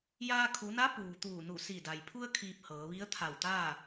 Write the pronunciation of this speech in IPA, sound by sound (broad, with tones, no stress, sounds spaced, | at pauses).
j aː˧ kʰ u˩˧ n a˧˥ p uː˩ t̪ uː˧˩ n u˧˩ s i˧˩ d a˩ j pʰ u˧ ə̯ kʰ iː˧ p̚ h ɤː˩˧ ʋ i˧˥ ə̯ t̪ʰ a˧˩ w t̪ aː˥˨